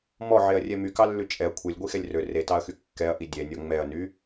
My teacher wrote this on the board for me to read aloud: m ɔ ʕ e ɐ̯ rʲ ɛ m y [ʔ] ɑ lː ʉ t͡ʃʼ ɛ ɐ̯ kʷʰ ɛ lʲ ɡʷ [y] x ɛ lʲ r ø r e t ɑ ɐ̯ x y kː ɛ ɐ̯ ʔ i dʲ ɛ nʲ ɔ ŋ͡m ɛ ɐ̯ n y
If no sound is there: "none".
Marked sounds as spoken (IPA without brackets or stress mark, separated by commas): k, i